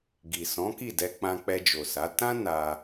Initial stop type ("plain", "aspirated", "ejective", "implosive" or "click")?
plain